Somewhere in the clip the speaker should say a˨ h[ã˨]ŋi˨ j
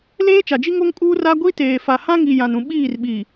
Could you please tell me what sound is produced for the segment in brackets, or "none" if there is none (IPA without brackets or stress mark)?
ã˦